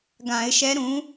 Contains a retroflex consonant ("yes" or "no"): no